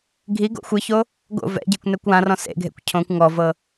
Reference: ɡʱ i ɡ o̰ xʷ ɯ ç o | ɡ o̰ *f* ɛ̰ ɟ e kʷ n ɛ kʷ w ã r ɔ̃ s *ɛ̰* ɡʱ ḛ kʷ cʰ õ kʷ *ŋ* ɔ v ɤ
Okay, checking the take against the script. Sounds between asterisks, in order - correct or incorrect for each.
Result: incorrect, incorrect, correct

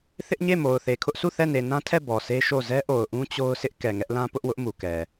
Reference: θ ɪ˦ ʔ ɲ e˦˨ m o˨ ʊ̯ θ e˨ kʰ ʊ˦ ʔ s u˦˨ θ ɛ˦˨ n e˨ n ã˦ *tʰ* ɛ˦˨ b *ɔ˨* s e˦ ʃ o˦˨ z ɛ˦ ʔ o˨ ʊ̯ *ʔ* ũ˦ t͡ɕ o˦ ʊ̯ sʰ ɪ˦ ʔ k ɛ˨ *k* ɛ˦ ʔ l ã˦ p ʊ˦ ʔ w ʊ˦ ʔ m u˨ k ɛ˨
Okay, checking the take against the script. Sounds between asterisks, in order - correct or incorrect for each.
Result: correct, correct, correct, incorrect

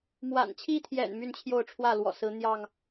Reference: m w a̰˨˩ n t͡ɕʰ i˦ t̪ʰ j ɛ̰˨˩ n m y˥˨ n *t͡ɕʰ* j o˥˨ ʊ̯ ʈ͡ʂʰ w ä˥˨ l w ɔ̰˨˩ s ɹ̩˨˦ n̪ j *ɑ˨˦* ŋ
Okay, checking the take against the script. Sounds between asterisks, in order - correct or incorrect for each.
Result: correct, incorrect

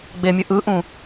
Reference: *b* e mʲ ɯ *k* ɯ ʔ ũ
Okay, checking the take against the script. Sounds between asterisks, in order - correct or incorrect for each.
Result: incorrect, incorrect

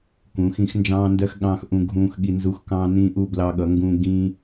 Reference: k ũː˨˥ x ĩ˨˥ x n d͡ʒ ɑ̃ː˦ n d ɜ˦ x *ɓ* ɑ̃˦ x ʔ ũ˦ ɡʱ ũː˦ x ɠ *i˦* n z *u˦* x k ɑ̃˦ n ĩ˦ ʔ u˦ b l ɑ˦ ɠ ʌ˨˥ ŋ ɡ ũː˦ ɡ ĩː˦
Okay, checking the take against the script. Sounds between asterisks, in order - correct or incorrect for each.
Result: incorrect, correct, correct

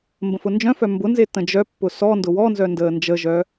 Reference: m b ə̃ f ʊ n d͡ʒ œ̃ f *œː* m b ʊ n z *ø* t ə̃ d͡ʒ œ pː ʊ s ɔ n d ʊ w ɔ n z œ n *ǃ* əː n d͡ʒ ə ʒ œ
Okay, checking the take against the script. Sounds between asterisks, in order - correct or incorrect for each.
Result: incorrect, incorrect, incorrect

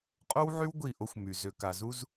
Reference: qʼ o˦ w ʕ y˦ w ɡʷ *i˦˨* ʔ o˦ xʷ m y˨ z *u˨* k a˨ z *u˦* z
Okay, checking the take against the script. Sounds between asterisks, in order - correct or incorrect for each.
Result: correct, incorrect, correct

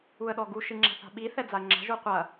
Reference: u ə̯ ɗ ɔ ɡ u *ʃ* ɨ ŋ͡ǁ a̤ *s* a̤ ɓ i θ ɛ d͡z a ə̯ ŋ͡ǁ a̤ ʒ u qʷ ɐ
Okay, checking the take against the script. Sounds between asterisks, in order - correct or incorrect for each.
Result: correct, incorrect

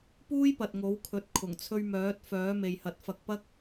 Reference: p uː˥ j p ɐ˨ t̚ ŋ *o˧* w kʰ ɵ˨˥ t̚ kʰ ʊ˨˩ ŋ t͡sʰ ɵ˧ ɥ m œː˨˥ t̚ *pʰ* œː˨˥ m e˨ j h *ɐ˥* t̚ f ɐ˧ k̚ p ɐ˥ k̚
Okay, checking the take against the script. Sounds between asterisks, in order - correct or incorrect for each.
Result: incorrect, incorrect, incorrect

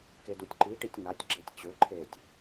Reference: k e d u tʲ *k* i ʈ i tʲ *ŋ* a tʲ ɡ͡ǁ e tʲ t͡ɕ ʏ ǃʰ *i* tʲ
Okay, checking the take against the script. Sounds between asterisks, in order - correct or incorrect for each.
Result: incorrect, correct, incorrect

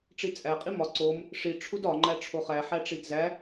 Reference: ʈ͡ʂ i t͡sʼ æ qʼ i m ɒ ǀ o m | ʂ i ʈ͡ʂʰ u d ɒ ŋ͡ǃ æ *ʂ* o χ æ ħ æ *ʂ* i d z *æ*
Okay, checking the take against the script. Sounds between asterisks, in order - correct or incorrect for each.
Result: incorrect, incorrect, correct

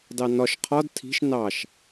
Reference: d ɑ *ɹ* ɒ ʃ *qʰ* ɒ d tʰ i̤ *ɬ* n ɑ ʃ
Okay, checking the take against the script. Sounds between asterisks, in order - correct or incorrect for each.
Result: incorrect, correct, incorrect

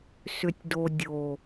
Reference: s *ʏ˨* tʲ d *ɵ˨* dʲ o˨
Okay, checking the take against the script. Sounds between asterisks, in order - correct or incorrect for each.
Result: correct, incorrect

